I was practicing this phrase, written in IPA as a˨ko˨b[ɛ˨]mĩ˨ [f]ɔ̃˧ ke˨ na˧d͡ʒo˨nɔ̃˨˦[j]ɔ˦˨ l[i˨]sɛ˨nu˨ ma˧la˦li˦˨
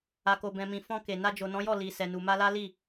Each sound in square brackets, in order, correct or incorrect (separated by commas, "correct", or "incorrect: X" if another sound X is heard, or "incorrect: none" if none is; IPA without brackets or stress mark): incorrect: ɛ̃˨, correct, correct, correct